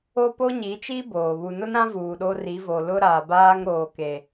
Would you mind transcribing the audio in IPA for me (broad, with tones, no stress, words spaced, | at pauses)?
o˦po˦ɲi˨˦t͡ʃiː˦ boː˨ βu˨nʊ˦nɾã˦ vuː˨ɗo˦ ri˨˦vo˨lʊ˦ ɾaː˨baː˦ŋɾoː˨ ke˨